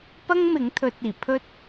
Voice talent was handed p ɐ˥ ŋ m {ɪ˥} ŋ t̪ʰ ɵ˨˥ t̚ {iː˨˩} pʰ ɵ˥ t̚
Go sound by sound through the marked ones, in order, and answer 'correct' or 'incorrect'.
incorrect, correct

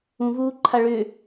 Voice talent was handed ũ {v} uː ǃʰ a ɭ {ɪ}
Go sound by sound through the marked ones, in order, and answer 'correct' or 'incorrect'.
correct, incorrect

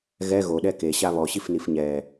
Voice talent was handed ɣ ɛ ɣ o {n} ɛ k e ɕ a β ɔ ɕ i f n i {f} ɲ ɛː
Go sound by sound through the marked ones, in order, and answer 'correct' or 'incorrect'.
incorrect, correct

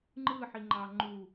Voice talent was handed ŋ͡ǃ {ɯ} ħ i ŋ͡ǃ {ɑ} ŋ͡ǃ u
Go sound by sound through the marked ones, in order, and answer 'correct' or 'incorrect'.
correct, correct

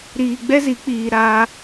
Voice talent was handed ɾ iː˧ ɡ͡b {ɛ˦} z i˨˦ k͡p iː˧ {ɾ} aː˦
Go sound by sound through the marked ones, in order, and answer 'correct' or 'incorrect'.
correct, correct

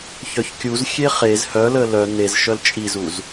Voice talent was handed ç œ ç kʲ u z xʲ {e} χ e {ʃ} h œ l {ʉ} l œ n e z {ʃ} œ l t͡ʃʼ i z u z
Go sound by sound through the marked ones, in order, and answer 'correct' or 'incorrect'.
correct, incorrect, incorrect, correct

